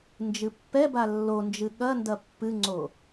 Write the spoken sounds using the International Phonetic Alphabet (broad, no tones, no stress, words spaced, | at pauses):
nd͡ʒɨpːɛba lːond͡ʒɨ ɠɐndɐ pːɨŋ͡ǀo